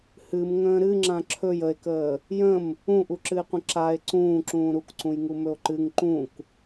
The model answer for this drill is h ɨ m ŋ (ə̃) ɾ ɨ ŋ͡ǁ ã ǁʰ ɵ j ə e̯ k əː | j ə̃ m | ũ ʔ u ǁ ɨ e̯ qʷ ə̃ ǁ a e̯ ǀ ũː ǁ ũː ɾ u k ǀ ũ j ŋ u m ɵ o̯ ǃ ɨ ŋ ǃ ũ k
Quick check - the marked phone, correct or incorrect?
incorrect